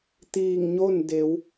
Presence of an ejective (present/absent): absent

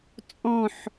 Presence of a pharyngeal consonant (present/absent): present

